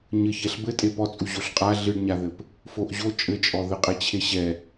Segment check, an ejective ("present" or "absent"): present